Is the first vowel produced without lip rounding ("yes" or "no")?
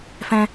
yes